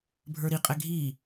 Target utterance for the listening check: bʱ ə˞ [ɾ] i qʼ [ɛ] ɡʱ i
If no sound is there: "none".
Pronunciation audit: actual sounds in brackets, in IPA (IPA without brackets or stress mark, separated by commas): ɾ, ɛ